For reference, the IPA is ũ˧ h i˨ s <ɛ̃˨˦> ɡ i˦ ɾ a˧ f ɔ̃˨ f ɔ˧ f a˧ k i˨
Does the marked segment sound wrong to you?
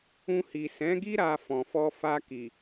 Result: no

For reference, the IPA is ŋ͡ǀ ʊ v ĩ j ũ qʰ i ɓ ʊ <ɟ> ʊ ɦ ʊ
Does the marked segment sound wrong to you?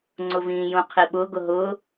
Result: yes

